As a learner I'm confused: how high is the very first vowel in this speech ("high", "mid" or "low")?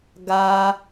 low